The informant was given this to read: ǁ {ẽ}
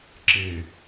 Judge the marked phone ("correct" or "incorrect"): incorrect